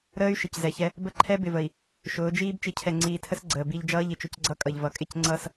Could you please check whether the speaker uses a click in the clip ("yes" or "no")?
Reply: yes